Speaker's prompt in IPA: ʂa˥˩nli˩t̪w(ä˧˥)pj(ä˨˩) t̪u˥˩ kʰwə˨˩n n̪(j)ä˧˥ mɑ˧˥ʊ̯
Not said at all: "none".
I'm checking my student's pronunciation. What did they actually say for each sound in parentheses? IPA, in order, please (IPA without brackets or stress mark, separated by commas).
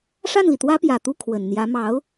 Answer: ä˥, ä˨˩, j